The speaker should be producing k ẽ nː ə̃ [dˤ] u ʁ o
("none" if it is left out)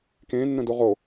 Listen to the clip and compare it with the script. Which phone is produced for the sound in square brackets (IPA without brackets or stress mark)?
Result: d